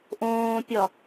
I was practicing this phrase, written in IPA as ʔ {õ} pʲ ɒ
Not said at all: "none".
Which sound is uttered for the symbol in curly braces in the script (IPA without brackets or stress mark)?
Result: õː